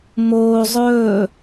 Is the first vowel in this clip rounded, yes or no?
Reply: yes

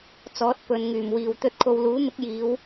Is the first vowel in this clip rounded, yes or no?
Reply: yes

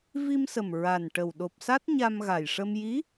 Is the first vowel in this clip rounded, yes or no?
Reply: no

